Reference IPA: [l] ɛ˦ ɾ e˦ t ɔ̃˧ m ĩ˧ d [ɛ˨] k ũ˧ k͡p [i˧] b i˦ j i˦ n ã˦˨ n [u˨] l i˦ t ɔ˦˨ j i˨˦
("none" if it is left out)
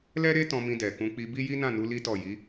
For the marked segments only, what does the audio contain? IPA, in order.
l, ɛ˨, i˧, u˧

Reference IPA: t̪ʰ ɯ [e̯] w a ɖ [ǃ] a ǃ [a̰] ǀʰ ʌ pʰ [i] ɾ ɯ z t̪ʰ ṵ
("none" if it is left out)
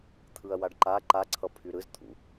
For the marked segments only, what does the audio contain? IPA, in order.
ɐ̯, ǃ, a, y

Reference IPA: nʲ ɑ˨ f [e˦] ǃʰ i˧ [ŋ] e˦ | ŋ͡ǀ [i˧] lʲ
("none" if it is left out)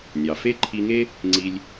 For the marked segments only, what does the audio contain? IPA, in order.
e˦, ŋ, i˧

